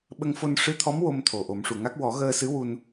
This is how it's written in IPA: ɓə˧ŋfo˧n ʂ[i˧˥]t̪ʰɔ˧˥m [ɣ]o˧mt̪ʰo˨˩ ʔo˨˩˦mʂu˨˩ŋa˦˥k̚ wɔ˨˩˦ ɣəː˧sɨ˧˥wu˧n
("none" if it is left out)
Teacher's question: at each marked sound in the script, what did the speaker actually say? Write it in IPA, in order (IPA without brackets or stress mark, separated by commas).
ɨ˧˥, w